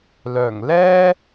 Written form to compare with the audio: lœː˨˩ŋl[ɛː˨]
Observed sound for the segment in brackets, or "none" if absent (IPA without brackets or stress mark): ɛː˥